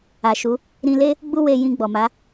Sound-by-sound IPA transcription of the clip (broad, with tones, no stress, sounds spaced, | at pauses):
a˨ ʃ u˨˦ | ɾ ĩ˧ l e˦ | ɡ͡b u˦ w e˧ j ĩ˧ ɡ͡b ɔ˨ m a˨˦